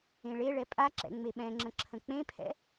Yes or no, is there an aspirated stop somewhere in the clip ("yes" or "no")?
yes